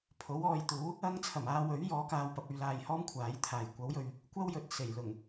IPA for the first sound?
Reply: pʰ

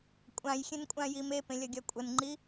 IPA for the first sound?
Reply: kʷʼ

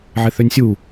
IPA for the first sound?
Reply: ʕ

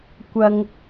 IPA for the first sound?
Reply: kʷ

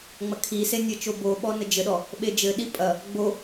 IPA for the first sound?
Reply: ŋ͡m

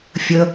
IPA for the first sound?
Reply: fʲ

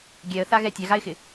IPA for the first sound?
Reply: ɡʲ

